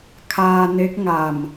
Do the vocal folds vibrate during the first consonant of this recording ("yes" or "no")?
no